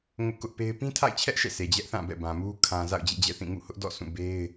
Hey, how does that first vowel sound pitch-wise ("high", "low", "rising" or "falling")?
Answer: high